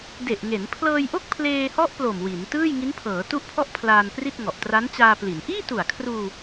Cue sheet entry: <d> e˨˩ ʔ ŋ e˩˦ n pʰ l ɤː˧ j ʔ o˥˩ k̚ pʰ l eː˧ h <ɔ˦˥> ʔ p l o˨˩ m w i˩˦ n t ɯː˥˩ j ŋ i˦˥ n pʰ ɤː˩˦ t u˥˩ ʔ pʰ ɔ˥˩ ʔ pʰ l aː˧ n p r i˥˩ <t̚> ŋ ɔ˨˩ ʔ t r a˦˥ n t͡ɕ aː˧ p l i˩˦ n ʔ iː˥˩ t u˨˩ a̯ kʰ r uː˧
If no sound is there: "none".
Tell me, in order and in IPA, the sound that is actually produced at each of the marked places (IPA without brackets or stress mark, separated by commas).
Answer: d, ɔ˦˥, t̚